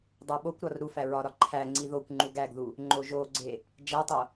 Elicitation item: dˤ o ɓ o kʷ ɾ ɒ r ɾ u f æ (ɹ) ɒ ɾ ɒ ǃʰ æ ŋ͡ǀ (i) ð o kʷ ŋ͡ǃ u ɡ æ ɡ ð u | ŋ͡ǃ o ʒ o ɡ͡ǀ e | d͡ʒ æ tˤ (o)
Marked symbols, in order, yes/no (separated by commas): yes, yes, yes